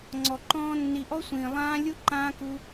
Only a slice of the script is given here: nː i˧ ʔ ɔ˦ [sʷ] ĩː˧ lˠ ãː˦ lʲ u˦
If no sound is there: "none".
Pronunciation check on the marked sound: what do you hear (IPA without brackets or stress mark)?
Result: sʷ